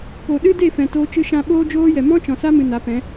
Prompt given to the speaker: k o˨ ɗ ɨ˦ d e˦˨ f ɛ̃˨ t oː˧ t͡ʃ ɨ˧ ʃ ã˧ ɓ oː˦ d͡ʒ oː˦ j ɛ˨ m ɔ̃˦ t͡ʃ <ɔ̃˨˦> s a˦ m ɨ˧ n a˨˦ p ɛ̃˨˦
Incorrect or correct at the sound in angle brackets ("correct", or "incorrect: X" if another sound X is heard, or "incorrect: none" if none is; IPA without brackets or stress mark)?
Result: incorrect: ɔ̃˨